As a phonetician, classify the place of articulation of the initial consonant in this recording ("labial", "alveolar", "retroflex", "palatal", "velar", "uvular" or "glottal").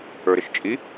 alveolar